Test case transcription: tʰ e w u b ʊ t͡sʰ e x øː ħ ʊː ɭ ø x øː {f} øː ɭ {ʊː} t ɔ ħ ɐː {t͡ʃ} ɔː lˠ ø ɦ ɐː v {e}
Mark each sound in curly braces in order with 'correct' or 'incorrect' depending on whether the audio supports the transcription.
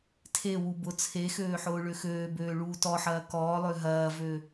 incorrect: b, incorrect: uː, incorrect: k, incorrect: ø

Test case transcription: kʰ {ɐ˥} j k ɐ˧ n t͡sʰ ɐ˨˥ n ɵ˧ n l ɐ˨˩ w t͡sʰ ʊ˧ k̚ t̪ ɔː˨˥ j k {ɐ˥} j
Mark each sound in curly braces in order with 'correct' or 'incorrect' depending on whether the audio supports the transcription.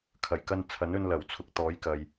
incorrect: ɐ˨˩, incorrect: ɐ˨

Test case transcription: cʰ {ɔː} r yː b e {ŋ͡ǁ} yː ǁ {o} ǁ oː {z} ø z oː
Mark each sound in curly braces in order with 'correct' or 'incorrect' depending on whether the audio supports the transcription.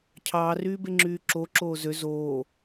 incorrect: ɑː, correct, correct, correct

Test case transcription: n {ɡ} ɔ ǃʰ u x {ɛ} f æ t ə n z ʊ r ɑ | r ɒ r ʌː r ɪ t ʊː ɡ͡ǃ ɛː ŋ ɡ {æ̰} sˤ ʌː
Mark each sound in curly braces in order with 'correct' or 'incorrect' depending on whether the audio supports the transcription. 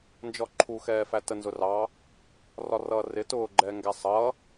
incorrect: d͡ʒ, incorrect: ɛː, incorrect: æ

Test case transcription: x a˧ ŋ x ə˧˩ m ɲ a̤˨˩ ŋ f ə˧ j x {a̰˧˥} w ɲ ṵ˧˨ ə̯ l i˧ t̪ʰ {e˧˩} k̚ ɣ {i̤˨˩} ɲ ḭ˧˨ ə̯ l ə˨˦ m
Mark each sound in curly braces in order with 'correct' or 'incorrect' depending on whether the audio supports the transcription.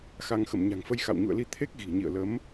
incorrect: a̰˧˨, incorrect: e˦˥, correct

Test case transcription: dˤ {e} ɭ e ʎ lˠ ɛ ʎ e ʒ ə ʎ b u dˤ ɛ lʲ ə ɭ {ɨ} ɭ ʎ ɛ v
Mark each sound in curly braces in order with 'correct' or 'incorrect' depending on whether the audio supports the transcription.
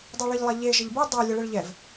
incorrect: ɛ, correct

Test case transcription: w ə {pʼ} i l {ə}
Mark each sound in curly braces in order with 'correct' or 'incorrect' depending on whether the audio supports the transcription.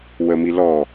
incorrect: m, incorrect: ɔ

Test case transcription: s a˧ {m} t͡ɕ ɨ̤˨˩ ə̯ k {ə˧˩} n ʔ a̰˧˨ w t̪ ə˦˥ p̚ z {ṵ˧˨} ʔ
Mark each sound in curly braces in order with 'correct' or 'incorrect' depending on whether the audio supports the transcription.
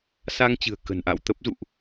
incorrect: ŋ, incorrect: ə̤˨˩, correct

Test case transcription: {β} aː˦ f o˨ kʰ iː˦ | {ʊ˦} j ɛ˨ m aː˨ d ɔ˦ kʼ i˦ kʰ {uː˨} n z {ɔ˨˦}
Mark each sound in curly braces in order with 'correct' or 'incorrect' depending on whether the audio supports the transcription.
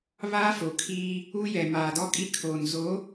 correct, incorrect: u˦, incorrect: oː˨, incorrect: o˨˦

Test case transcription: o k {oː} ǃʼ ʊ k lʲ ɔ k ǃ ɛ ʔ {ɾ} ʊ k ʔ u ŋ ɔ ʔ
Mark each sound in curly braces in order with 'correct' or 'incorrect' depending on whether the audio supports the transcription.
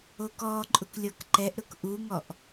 incorrect: ɔː, correct

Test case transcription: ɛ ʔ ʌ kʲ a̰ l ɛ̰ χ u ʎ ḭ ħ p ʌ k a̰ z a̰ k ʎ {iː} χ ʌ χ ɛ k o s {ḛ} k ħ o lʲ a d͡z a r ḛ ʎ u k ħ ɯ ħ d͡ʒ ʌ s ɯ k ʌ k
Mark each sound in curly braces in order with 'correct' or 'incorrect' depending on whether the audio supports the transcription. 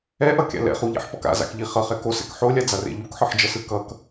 incorrect: i, incorrect: ɛ̰

